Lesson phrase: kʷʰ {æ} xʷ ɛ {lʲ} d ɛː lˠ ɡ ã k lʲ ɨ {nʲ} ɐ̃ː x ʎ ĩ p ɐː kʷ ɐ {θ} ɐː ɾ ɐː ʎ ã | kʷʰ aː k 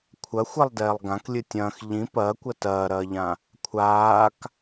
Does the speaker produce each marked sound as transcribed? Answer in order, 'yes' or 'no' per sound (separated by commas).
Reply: no, no, no, no